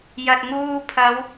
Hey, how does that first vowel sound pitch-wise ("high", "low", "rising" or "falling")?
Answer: low